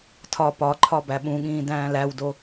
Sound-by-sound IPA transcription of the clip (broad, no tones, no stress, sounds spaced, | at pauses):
tʰ ɒ p ɒ ǃʰ ɒ b æ ɓ ũ ɠ ĩː d æ̃ː l æ w d o